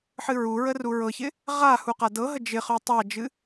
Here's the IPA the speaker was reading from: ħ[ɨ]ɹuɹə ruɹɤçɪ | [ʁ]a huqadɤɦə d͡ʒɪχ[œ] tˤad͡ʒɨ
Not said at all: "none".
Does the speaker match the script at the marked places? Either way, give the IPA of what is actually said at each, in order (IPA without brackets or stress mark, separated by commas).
ɨ, ʁ, œ